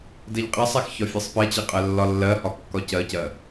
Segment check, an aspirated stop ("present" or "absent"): absent